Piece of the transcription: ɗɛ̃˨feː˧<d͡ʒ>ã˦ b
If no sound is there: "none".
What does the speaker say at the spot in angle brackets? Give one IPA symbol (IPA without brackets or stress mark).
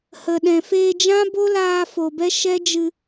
d͡ʒ